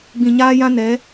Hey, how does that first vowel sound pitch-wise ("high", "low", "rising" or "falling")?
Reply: low